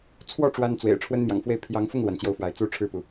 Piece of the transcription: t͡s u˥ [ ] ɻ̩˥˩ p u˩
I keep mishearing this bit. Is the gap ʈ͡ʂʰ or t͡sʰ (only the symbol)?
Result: ʈ͡ʂʰ